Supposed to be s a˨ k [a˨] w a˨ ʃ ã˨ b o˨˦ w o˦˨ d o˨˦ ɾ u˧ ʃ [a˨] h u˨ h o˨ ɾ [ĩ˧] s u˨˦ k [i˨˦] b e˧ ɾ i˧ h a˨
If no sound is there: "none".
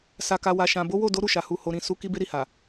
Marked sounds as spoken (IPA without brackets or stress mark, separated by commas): a˨, a˨, ĩ˨, i˧